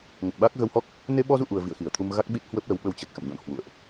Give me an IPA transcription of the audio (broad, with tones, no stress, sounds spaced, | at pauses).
ŋ ə˨˩ t̚ ɓ aː˦˥ k̚ ɣ ə˧ w h ɔ˦˥ k̚ | n e˧ ɓ ɔ˧ z ṵ˧˨ ʔ u˨˩ ə̯ v ḭ˧˨ ə̯ x i˧˩ ə̯ t̪ʰ u˧ m ɣ a˦˥ k̚ ɓ i˦˥ t̚ h w ə˦˥ p̚ l ə˨˦ w ɓ ə˧ w t͡ɕ ə˨˩ t̚ x ə̰˧˨ m ɲ ɔ̰˧˨ n h w ṵ˧˨ ə̯ ʔ